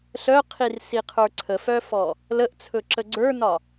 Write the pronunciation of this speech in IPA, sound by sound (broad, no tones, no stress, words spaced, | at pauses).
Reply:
ɬœqʰirsiqʰə˞ ǀʰəfœfɔ | ləʔt͡sʰɵǁə ɡ͡ǀə˞nɒ